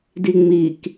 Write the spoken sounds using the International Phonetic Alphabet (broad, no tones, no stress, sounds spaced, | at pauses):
d i ŋ͡m i k